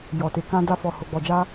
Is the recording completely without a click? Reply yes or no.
yes